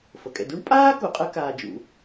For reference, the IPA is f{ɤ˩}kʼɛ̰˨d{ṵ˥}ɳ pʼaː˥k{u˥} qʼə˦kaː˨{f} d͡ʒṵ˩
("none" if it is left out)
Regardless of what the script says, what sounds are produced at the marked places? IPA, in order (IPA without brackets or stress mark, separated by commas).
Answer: ɤ˩, u˥, u˩, none